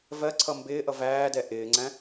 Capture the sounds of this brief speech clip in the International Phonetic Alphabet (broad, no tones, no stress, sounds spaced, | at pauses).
v ɜ ǀʰ ʌ m b ɪː ʔ ʌ v æː d ɛ ʔ ɪː ŋ͡ǀ æ̃